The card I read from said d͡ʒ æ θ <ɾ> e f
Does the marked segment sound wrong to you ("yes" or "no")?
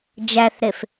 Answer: no